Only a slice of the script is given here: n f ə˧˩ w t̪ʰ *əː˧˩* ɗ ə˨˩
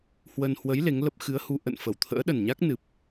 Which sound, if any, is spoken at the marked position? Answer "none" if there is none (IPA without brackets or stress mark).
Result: ə̰ː˧˥